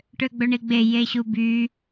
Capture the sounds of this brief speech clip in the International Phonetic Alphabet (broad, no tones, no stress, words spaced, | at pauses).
ʈøɡ͡bɵɳiɡ͡be jeɕuby